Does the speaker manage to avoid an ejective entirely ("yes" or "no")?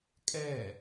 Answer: no